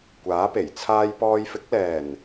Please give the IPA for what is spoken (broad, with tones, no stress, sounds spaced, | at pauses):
kʷ aː˨˥ p e˨˩ j t͡sʰ aː˧ j p ɔː˧ j f ɪ˨˥ k̚ l ɛː˨˩ n